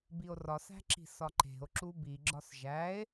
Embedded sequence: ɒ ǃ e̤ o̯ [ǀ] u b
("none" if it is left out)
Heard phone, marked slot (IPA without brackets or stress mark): ǁ